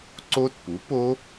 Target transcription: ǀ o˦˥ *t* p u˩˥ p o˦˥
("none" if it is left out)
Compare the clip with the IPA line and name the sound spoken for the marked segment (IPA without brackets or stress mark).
t